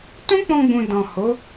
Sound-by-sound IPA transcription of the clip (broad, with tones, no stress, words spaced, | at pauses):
tũ˦k͡pɔ̃˧ɡ͡bũ˨ dɔ̃˨ho˨˦